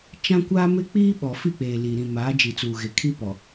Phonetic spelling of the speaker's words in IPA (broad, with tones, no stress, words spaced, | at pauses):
t͡ʃã˦kʷa˦ mɪ˦k͡piː˦ɓɔ˨ fi˦˨k͡peː˨ li˨ ɾĩ˨ maː˨˦d͡ʒi˨t͡suː˨ɣe˨ kʰi˦pɔ˨